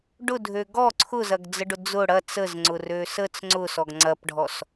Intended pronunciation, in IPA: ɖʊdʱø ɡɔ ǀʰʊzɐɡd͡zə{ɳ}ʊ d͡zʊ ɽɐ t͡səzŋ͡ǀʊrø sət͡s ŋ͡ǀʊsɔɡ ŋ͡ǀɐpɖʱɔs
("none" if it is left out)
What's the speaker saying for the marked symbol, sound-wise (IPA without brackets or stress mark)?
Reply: ɖ